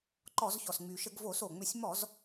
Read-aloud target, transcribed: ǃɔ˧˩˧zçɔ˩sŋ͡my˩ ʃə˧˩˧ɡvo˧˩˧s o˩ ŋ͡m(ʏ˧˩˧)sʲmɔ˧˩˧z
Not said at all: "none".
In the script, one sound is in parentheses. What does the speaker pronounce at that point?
ʏ˧˩˧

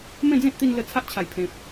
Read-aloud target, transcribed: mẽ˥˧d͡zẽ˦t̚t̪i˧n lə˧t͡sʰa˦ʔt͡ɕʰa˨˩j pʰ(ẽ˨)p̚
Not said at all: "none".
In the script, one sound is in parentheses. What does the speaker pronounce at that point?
ẽ˨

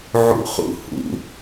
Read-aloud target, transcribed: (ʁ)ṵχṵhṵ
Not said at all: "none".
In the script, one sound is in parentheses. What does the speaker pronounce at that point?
ʕ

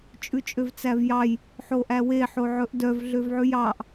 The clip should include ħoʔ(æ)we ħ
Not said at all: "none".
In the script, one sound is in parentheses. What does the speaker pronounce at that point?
æ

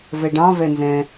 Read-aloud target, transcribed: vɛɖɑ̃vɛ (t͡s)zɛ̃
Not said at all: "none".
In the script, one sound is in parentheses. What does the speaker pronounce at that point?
n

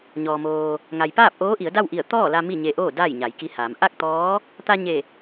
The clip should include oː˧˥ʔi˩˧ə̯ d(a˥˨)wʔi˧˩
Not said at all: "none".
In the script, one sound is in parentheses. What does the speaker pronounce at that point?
a˥˨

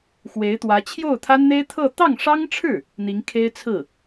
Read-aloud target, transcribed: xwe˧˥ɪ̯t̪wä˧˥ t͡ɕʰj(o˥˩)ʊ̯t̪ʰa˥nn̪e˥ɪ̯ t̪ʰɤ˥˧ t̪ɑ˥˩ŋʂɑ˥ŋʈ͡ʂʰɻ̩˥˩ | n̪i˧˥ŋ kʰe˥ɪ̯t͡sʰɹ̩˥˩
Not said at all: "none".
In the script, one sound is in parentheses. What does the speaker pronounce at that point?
o˥˩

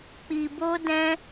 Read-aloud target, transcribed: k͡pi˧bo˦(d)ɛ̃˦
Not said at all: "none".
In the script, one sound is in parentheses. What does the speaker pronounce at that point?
d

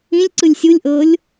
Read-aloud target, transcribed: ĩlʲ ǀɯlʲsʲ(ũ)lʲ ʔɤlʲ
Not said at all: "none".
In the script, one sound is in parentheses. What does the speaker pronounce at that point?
u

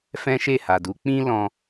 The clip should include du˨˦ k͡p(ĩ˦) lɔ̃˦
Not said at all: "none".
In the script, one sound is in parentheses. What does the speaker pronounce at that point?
ĩ˦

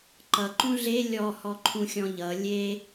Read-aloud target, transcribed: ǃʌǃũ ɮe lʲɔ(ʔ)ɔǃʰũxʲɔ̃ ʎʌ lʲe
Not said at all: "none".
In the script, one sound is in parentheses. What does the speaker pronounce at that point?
h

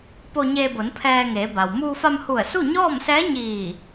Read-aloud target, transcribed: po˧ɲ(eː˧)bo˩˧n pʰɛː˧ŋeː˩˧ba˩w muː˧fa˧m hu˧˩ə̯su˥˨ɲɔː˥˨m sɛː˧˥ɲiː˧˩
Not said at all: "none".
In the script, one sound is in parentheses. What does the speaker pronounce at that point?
eː˧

